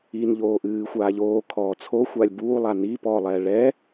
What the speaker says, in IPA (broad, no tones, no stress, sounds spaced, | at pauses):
i n ʎ oː ʔ ɨː xʷ aː ʎ oː kʰ ɔː t͡sʰ o xʷ a lʲ b uː lˠ a n i p ɔː lˠ ɛː ɭ ɛ